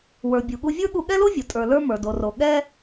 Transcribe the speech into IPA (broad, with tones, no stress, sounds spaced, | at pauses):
w ə˞˩ bʲ u˩ ɠ u˧ vʲ ə˞˥ ɠ u˧ ɠ ɛ˥ l o˥ vʲ o˩ tʼ ə˞˩ l ə˞˧ m ə˞˩ d o˩ r o˩ ɠ ɛ˥